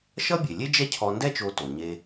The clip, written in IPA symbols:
ʃ ʌ˥ bʲ e˩ lʲ e˥ d͡ʒ ɛ˥ cʰ ɔ˧ n d ɛ˥ t͡ʃ o˧ t o˩ ɲ e˧

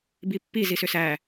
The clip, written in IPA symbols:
b i pː i z i s ʏ s æ

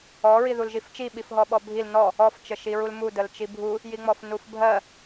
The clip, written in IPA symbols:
ɔ ɹ i ð u l ʒ i f t͡ʃ i ɓ i f ɦ ɔ ɓ ɔ bʱ i l n ɔ | ɔ f t͡ʃ ə ʃ i ɹ u l m u d ə l t͡ʃ i bʱ u | j i ŋ͡m ɔ f n u f bʱ ɜ

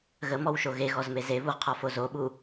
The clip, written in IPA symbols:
ɣ ə m ɔ w ʃ o ɣ e ɣ ɔ z m e z e β u ʁ qʰ ɒ f o z o ɓ u

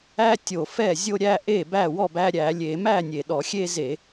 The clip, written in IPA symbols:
æ˦ tʲ o˨˩ f ɛ˥˩ zʲ o˦ ɾʲ æ˦ ʔ e˥˩ b æ˥˩ w ɔ˥˩ b æ˦ ɾʲ æ˧˩˧ lʲ e˧˩˧ m æ˥˩ nʲ e˨˩ ɗ ɔ˧˩˧ xʲ e˦ z e˧˩˧

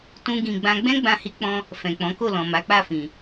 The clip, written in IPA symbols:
t ũ˦ ɡ ĩ˧ ɡ͡b ã˦ ɡ͡b ɛ̃˦ ɡ͡b ã˧ h i˧ k͡p ɔ̃˧ | f ɛ̃˨ k͡p ɔ̃˨˦ k o˦˨ l ɔ̃˨ m a˨˦ k͡p a˦˨ f ĩ˨

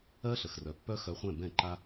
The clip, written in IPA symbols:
ɜ˦ ɬ ə˨ x r œ˨ pː œ˦ x œ˧ χʷ ɛ̃˦˨ b ɛ̃˦˨ ǃ a˦

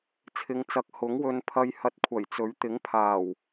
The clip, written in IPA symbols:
t͡sʰ ɪ˨˧ ŋ t͡s ɐ˨˥ k̚ h ʊ˨˥ ŋ w ɵ˧ n pʰ ɐ˧ j h ɐ˧ t̚ kʷʰ ɐ˨˩ j t͡s ɵ˨˥ ɥ t̪ ɪ˨˥ ŋ pʰ aː˨˩ w

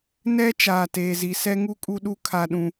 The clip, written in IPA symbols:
n ɛ˦ t͡ʃ aː˨ t eː˨ z i˨ s ɛ˦ ŋ u˦ kʼ u˦ ɗ u˦ kʰ a˦ ɗ ũ˦

